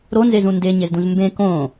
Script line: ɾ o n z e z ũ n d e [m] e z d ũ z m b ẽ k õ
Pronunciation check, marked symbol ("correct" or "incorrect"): incorrect